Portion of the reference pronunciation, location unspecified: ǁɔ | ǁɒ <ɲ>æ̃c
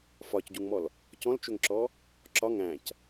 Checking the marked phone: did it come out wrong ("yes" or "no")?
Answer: yes